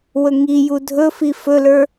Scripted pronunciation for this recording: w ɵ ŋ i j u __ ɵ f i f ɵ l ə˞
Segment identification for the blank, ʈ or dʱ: dʱ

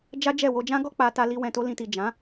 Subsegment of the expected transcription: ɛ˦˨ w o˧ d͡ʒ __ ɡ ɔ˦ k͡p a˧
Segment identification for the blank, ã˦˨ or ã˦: ã˦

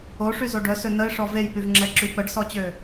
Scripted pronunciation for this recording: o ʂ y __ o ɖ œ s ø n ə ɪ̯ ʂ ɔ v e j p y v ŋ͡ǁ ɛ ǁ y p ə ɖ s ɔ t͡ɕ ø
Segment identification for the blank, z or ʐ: z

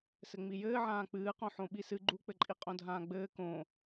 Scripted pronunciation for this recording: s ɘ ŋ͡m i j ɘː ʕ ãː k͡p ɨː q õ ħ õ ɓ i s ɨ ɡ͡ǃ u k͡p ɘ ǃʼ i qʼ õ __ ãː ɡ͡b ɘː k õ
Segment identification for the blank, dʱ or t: dʱ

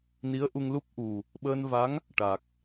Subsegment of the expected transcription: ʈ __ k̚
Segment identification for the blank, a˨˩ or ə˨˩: a˨˩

